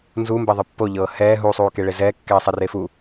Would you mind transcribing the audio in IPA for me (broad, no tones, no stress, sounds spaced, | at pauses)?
n z u m b ɛ ðˤ ɯ pː o ʎ ɤː h ɛː ɦ u sˤ uː k e ɭ e z ɛː kː ɛː sˤ ɛ r e f u